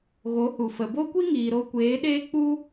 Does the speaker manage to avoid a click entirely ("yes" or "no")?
yes